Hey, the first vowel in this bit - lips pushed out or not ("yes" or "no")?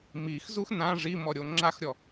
no